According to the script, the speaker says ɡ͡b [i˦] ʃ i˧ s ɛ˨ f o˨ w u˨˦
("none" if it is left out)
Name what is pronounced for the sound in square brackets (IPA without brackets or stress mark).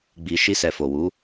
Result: i˨